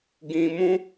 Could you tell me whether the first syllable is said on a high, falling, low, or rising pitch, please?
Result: low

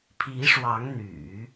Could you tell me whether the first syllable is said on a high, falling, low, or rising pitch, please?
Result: rising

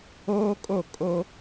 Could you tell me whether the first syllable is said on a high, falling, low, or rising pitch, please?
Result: high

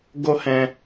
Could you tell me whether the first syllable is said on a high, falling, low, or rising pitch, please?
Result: high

